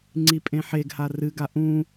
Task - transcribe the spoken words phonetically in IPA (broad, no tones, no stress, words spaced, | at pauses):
ŋ͡ǀipʼẽħeɡha rɨɡa ʔũ